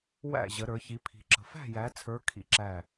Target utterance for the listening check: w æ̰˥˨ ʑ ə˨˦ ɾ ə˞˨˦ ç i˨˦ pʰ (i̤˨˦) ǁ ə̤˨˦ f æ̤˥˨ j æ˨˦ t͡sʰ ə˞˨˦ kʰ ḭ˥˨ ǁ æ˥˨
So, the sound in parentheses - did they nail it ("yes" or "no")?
yes